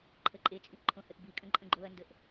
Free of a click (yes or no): no